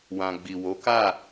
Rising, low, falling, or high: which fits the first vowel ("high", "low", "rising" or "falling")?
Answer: low